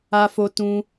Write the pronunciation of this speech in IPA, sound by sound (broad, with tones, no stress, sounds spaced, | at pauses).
a˦ f o˦ t ũ˦